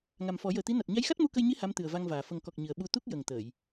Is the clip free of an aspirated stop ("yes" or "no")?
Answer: yes